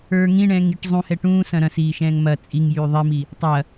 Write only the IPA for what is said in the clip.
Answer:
ə˞ ŋ ĩ ɳ ɛ̃ː ŋ i ʈ zˤ ũ h ɛ ʈ ũː s ɐ̃ ɾ ɐ̃ s iː ʃ ɛ̃ː ŋ m ɐ t͡sʼ i ŋ j yː ðˤ i m i | tˤ ɐ

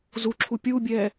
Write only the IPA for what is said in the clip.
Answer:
z u ǁʰ u pʲ uː bʲ ɛː

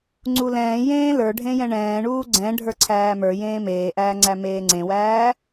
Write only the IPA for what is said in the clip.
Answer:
ŋ͡ǀ u l ɛ̃ː j ẽː l ə˞ ɖʱ ẽ j ɛ̃ ɳ ɛ̃ː ɳ uː ɡ͡ǀ ɛ̃ ɖʱ ə˞ ǀʰ æː m ə˞ j ẽː m eː ʔ æː ŋ͡ǀ æ m eː ŋ͡ǀ ẽ w æː

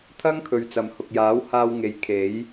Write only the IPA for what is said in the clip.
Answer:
t̪ʰ ɐ˥ ŋ kʰ ɵ˨ ɥ t͡s ɐ˨ m h ʊ˨ k̚ j aː˨˥ w h aː˧ w ŋ e˨˥ j kʰ e˨˥ j

